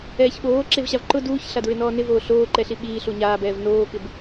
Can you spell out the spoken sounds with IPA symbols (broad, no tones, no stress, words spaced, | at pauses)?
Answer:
ɛːçɓoː ǁevɕavǃʊ duːçɬadɹɪ nɔːnɪvoː ɬoːǃɛɬi ɓiː ɬuɲaːbɛːv noːkɪb